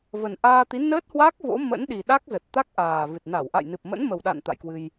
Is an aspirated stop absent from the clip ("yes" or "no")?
yes